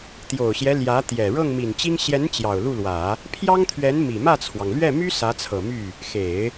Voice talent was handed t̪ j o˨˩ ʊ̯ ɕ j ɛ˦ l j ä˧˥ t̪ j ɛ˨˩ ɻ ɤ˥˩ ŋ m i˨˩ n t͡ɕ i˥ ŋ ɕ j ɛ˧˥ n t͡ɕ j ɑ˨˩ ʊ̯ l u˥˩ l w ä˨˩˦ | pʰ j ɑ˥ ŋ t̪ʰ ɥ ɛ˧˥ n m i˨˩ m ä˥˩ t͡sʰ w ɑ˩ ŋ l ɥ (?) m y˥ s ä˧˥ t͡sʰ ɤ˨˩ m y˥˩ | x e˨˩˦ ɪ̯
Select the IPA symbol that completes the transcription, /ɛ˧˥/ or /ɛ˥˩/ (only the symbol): ɛ˥˩